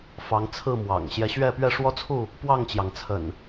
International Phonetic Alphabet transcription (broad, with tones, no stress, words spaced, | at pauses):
fɑ˨˦ŋt͡sʰɹ̩˥˨ mwɑ̰˨˩ŋ ɕjɛ˨˦ɕɥɛ˥˨pɥɛ˥˨ ʂwɔ˦t͡sʰu˥˨ | pwɑ˥˨ŋt͡ɕjɑ˩ŋ t͡sʰə̰˨˩n